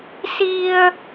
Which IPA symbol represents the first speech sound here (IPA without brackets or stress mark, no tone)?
s